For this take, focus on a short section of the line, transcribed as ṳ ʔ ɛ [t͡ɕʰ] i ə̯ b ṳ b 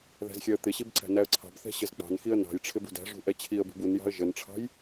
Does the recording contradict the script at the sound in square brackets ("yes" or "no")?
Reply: no